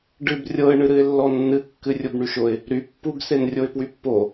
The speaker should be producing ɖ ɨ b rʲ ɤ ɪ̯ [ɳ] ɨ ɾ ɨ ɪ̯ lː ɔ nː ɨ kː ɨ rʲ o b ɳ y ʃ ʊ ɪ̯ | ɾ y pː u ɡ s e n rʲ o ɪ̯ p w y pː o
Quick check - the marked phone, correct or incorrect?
correct